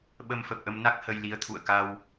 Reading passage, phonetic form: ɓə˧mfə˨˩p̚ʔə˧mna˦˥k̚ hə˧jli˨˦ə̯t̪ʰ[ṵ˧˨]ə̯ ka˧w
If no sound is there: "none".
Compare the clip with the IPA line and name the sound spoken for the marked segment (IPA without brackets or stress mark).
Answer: ṵ˧˨